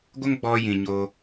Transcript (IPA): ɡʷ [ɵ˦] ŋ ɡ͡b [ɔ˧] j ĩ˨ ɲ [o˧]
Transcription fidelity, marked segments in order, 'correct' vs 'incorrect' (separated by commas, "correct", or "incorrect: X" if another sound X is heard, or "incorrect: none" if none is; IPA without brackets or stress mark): incorrect: ə˦, correct, correct